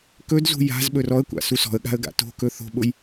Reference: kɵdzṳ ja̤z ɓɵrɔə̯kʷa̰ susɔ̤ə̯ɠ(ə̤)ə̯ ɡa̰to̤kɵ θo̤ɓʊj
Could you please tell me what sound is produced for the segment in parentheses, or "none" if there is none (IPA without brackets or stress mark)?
a̤